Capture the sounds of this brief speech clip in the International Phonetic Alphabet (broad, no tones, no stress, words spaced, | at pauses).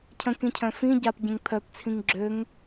cʰə̃kĩcʰœ̃ fĩ ɟapɟẽŋ pʰœpt͡sʰĩŋ ɡ͡ǁøŋ